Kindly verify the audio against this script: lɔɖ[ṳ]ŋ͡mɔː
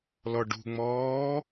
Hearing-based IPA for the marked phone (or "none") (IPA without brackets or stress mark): ṳ